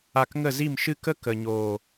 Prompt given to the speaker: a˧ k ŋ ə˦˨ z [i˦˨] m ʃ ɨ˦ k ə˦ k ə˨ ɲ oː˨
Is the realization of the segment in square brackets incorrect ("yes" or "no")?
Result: no